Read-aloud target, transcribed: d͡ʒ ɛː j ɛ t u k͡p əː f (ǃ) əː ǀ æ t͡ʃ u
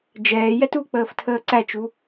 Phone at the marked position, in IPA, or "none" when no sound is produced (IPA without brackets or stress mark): tʰ